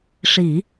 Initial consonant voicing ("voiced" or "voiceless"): voiceless